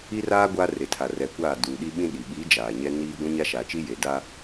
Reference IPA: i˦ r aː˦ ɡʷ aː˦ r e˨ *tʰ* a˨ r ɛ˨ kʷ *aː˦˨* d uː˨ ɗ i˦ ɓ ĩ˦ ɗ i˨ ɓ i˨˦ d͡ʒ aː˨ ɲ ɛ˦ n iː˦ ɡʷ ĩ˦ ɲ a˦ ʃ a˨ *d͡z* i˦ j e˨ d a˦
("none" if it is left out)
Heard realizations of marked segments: tʰ, aː˦˨, t͡ʃ

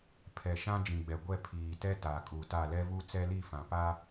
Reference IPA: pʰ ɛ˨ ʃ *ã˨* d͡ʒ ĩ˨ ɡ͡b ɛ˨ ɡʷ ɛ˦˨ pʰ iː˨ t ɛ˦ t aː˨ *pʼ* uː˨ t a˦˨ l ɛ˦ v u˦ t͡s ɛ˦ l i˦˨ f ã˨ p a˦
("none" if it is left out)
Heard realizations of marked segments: ã˦, kʼ

